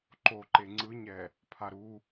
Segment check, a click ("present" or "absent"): present